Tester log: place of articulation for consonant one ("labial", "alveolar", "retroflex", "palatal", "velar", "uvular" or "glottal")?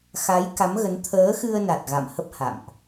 velar